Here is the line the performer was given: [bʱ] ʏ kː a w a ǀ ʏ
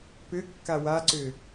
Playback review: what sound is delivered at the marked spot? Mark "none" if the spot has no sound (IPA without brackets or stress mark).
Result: p